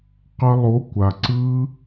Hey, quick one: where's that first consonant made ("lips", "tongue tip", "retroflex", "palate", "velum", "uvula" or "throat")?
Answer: uvula